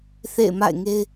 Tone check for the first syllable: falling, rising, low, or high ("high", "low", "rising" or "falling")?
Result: falling